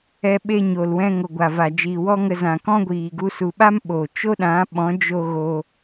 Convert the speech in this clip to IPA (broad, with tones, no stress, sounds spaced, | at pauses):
ɛ˧ ɓ e˧ ɲ o˨ l w ɛ̃˧ ŋ o˨ ɡʷ a˨ v a˨ d͡ʒ iː˨ w ɔ˦ ŋ ə˧ z ã˨ k ɔ̃˦ ɡʷ iː˨ ɡ u˧ s u˨ ɓ a˦ m ɓ o˨ t͡ʃ o˦ ɗ ã˨˦ ɓ ɔ̃˨˦ d͡ʒ o˧ ɣ o˧